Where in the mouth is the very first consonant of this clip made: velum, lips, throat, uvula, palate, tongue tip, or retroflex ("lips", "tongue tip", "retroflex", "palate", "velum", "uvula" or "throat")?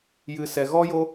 palate